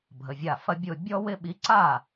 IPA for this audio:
bʱ ə˩˧˩ vʲ a˧˩ f ɐ˦ bʲ ʊ˧˩ bʲ ɔ˦ w ɪ˦ ɓ i˨˥ ǀ a˥˩

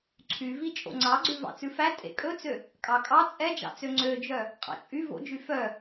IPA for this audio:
ǀʰ y v i t͡ʃʼ o̰ ŋ͡ǀ ɑ ɡ͡ǀ ʉ v ɑ̰ t͡s ʉ f æ tʼ ḛ kʼ ɵ t͡s ø | kʼ ɑ kʼ ɑ t͡sʼ ɛ d͡ʒ ɑ̰ t͡s ø ŋ͡ǀ ø d͡ʒ œ | qʼ ɑ̰ t͡ʃʼ y v o̰ d͡ʒ y f œ

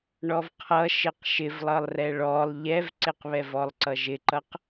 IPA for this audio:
ɳ ɔ v qʰ ʌ ʃ ɪ q ʃ ɪ v lˠ ʌ lˠ r ɛ ɭ ɔ lˠ ʎ ɛ v ǀ ɪ q β ɛ v ɔ lˠ ǀ ʌ ʒ ɪ ǃ ʌ q

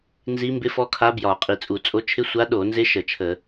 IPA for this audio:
n z i˧˥ m b ɪ˧˥ f ɔ˧˥ kʰ a˧˥ b j ɒ˧˩˧ qʼ i˧˩˧ t͡sʼ u˧˩˧ t͡sʼ o˧˥ t͡ʃʰ ɪ˧˥ sʷ a˧˥ ɗ o˧˩˧ n z ɪ˧˥ ʃ ə˧˩˧ t͡ʃʰ ə˧˩˧

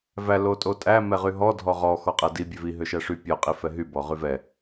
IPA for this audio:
v æ l o tʼ o tʼ æ m ɛ ʁ y ɦ ɔ dʱ ɔ ʁ ɔ x ɔ qʼ æ d i bʲ ø v i ɦ ø ʃ æ ʂ y pʲ ɔ qʼ i f ɛ ɦ y b ɔ ʁ y v ɛ

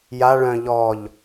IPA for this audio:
j a ɭ œ̃ ʎ ɔ ʎ

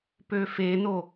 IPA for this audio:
p ø f e n o

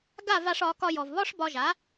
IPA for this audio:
ɡ a˥˩ v a˧ ʂ ɒ˩˥ k ɒ˧ j ɔ˩ v β ɒ˥ ʂ b ɒ˧ ʒ a˩˥

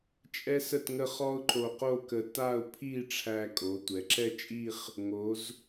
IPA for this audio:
t͡ʃʼ ɛ˥ s ə˥˧ t ŋ ə˥˧ χ ɔ˥ ʊ̯ ǃ o˧ q o˥˧ k ə˧ t a˥˧ ʊ̯ pʰ i˥˧ ʈ͡ʂʰ æ˧ kʼ o˩˧ tʷ ɛ˩˧ ǁ ɛ˥˧ t͡ʃʼ i˥˧ χ | ŋ o˩˧ z

